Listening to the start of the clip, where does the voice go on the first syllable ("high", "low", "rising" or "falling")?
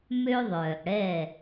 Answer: high